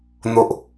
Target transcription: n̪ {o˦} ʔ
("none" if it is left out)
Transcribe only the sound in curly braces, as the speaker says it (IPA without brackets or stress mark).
o˨